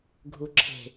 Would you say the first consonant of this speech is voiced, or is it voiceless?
voiced